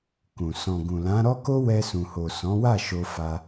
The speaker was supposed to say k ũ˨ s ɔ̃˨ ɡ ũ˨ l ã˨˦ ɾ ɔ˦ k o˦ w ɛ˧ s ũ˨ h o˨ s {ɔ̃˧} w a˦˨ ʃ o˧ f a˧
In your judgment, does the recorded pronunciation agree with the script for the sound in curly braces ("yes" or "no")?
no